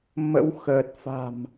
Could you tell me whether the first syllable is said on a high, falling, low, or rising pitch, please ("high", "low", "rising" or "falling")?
rising